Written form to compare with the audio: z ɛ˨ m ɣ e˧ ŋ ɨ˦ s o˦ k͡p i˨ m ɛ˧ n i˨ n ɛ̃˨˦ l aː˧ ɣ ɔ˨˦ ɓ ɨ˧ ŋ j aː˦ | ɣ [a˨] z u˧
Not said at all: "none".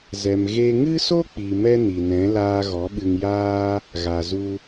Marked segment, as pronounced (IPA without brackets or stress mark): a˨